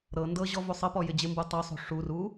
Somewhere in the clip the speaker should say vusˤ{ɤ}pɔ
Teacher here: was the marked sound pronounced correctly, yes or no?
yes